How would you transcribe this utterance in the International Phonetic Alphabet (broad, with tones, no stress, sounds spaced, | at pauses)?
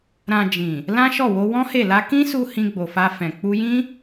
ɾ ã˨ d͡ʒ ĩ˨ | l ã˦ ʃ ɔ˦˨ w o˧ w ɔ̃˦ h e˦˨ l a˧ k ĩ˦ s u˧ h ĩ˧ ɡ͡b o˨ f a˧ f ɛ̃˨ k͡p u˧ j ĩ˦